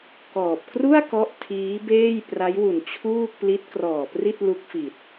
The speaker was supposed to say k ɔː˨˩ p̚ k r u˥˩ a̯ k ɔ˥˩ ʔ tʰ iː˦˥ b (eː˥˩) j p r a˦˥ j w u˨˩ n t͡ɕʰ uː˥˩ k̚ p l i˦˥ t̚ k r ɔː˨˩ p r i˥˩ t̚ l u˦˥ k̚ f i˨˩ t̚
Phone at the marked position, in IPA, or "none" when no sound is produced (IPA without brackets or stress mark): eː˥˩